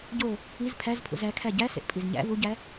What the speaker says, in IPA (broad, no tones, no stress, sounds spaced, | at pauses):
ɟ o | i z pʰ æ z pʰ ṵ z æ kʰ æ ɟ æ s ḛ ʔ pʼ i z ɲ æ̰ v u ɟ æ